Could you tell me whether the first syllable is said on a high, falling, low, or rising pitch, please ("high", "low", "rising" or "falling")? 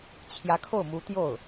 rising